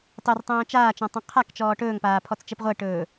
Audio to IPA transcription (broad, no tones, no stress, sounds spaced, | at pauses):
tˤ ɵ r tˤ õː t͡ʃ aː t͡ʃ ɔ̃ tˤ õ qʰ a k t͡ʃ ɔː ʈ ɵː ŋ p aː pʰ ɔ t͡s t͡ʃ ɛ p ʁʷ ɛ ʈ ɵː